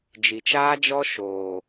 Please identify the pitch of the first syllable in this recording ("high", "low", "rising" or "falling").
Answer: low